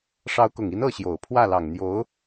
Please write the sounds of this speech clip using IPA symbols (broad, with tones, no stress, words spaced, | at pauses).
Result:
ʂɑ˧˥ʊ̯kʊ˨˩ŋi˧˥n ɤ˥˩ɕjo˨˩ʊ̯ pʰwä˥˩lɑ˨˩ŋn̪jo˧˥ʊ̯